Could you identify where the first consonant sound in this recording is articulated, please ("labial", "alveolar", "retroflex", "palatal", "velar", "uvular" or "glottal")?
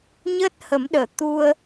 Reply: palatal